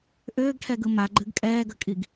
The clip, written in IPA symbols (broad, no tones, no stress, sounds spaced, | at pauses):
ʔ ʏː ɡ ʈʰ ɛ ɡ ɯ m a ɡ͡ǃ ɨ ɡ kʼ ɛː ɡ ə kʼ i ɡ